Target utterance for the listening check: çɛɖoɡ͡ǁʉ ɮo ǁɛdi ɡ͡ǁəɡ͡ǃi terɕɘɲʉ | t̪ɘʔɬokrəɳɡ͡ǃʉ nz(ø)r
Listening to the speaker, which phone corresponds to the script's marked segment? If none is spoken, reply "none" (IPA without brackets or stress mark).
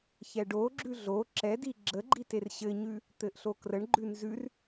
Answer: ʉ